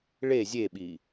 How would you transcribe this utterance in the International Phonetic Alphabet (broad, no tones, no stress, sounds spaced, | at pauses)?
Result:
ɭ e zʲ e ɓ i